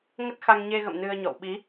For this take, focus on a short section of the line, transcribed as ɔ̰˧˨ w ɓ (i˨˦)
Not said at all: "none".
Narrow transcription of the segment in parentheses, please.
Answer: i˨˦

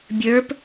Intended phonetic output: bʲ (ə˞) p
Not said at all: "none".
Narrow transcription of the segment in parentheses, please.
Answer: ə˞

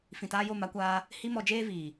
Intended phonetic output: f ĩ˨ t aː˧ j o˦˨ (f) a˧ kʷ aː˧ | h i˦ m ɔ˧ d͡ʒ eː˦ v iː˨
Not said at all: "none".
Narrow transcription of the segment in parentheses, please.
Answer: m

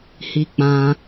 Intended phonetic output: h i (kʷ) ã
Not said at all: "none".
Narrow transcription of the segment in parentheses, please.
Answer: k͡p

